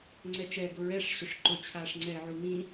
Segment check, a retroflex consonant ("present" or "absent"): present